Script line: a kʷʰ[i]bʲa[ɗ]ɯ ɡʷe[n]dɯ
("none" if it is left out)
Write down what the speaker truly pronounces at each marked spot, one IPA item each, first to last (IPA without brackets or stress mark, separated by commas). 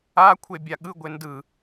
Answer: e, ɠ, n